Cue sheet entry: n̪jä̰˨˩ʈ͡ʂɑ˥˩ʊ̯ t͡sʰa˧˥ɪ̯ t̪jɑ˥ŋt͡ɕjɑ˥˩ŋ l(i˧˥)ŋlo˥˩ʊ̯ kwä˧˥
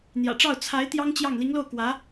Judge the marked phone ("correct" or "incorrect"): correct